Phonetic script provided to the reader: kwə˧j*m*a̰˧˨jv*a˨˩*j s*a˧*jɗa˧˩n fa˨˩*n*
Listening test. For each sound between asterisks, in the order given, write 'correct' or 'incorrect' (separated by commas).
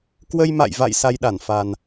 correct, incorrect, correct, correct